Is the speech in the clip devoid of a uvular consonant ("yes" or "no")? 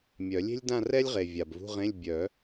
no